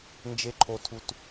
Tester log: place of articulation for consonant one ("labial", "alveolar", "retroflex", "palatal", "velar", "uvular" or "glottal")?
alveolar